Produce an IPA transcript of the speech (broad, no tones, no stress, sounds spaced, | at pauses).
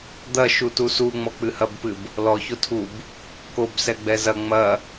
d̪ ɐ ʃ u t u s u ŋ͡m ɔ k͡p ɨ h ɐ b p ɨ b | l ɔ ç o tʰ u b | k o b s ɛ ɡ͡b ɛ z ɐ ŋ͡m ɐ